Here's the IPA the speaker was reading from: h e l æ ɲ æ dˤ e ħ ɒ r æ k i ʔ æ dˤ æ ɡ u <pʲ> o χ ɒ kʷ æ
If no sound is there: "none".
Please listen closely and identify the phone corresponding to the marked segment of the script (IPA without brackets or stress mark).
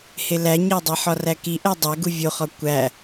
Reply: vʲ